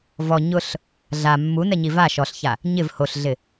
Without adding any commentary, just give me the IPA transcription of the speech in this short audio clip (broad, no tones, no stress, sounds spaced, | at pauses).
v ɔ ɲ ʊ ɬ | ɮ a mː u n ɛ ɲ i v a ʃ ɔ ɬ ç a | ɲ ɪ v h o ɬ ɮ ɪ